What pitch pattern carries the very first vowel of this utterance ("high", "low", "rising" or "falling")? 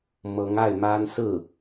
rising